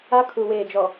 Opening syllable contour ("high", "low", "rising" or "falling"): high